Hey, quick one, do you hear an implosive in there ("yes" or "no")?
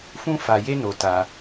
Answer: no